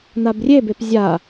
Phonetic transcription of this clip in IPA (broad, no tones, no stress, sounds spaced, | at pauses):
n̪ a b rʲ e b e p zʲ a